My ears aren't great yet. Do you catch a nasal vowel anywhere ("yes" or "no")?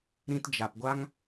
yes